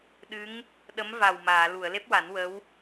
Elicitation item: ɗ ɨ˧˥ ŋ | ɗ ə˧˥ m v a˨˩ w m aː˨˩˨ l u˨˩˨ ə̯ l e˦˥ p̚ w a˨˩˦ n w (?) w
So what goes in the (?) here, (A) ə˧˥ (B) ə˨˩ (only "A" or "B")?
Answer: A